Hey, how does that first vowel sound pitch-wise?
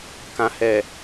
low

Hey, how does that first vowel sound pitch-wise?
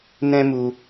high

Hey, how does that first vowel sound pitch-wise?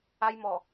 high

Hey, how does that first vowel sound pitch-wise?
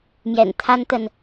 low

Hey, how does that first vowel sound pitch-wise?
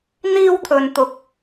high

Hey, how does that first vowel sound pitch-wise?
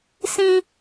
high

